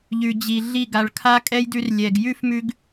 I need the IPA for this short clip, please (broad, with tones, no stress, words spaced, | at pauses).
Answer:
ʎʉ˨d͡ʑi˨ɮi˦˨ ɡa˨ɭkʰa˦kʼɛ˦j dʉ˧rlʲɛ˨ɡ jʉ˦fmʉ˧ɡ